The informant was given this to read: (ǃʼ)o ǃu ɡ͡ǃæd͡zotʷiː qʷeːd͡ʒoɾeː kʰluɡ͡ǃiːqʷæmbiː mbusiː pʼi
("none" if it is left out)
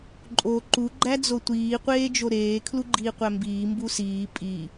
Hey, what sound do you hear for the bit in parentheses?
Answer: ǃʼ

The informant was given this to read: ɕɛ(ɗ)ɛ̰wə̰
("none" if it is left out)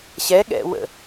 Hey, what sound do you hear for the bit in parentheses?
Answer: ɠ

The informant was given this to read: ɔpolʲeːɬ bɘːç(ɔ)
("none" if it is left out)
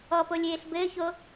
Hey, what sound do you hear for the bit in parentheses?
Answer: o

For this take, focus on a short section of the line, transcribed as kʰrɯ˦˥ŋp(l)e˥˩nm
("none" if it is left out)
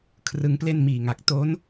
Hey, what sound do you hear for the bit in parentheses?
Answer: l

